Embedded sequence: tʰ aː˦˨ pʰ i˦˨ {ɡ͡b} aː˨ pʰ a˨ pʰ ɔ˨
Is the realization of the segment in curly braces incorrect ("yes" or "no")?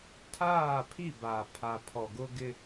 yes